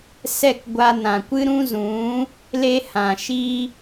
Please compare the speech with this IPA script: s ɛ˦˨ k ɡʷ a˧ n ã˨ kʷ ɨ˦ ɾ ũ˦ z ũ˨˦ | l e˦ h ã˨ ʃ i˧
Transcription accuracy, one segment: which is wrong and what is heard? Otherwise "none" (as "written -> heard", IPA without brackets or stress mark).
none